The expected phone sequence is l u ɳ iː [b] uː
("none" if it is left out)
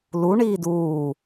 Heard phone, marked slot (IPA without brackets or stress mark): d